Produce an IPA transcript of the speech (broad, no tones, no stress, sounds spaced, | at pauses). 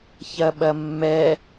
ç ɐ ɓ ɐ mː ɛ